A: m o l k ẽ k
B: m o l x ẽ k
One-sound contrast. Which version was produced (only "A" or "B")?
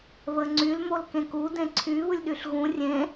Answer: A